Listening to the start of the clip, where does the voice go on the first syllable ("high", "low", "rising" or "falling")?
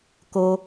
low